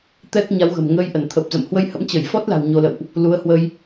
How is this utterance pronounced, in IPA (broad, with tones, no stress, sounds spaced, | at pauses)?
t̪ ɛ˦˥ k̚ ɲ a˨˦ w ɣ ə̤˨˩ m ŋ əː˧ j ʔ ə˧˩ n t̪ʰ ə˨˩ p̚ z ə̰˧˨ m h w ə˧ j h ə̰˧˥ m t͡ɕ ə˧˩ j f ɔ˦˥ t̚ l a̤˨˩ w ɲ o˧ l ə̰˧˨ w ʔ | l u˨˦ ə̯ h w ə˧ j